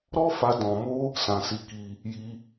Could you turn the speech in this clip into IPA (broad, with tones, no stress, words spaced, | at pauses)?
ɾɔ˦fa˧ dɔ̃˧mo˦ | sã˧si˧ki˧ | ji˧